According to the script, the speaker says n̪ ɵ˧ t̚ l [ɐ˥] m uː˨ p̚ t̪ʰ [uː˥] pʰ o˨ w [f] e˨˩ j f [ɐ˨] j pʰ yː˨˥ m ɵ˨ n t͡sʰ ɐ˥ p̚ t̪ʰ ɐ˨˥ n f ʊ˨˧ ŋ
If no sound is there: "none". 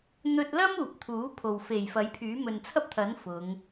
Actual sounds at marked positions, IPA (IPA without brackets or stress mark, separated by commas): ɐ˥, uː˨˥, f, ɐ˨˥